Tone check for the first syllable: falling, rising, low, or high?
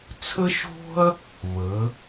high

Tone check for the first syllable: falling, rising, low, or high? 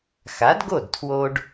rising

